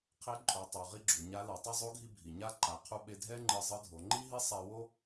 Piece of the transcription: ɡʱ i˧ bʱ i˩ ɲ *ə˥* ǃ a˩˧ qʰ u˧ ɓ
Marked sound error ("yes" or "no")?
yes